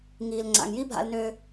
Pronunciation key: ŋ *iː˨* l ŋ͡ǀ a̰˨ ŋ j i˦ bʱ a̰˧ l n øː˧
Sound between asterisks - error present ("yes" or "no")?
no